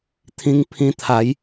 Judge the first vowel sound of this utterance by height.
high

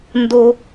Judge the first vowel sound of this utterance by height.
mid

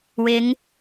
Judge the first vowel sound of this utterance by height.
high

